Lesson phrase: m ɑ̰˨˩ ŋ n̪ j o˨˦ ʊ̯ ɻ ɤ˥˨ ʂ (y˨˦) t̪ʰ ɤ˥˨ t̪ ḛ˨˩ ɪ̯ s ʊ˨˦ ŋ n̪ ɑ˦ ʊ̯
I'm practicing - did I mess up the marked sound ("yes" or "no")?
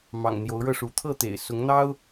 yes